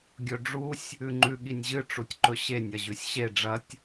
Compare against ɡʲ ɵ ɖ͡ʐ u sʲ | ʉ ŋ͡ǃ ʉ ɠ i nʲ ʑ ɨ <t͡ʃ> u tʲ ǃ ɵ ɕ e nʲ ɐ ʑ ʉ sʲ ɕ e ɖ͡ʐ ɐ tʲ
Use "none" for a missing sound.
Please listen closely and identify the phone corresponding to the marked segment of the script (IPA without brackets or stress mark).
ʈ͡ʂ